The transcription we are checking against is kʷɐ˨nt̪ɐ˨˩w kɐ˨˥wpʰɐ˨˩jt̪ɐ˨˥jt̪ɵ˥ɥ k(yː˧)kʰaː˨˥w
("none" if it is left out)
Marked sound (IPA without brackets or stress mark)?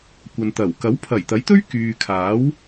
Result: yː˨